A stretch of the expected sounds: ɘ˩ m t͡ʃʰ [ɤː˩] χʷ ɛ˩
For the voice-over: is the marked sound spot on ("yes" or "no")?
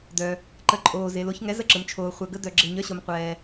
no